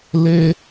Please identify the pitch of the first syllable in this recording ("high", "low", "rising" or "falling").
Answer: high